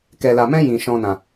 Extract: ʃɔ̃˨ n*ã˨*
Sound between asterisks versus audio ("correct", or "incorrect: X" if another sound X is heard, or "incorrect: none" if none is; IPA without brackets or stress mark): correct